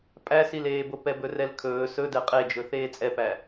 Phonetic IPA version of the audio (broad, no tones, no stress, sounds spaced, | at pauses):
pʼ æ s i l eː b o p ɛ b ɵ r ɛ l kʰ ɵː s ɵ d ɛ qʼ e d͡ʒ ɵ θ eː t͡sʼ ɛ p æ